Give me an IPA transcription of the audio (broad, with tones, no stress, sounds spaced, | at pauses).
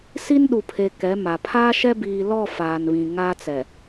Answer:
s i˦ n ɗ u˨ pʰ e˨ k ɛ˨˦ m a˨ pʰ aː˦ ʃ ɛ˦ b iː˨ l ɔ˦˨ f aː˨ n β ĩ˨ ŋ a˦ t͡s ɛ˨